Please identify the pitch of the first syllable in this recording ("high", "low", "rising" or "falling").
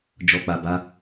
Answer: low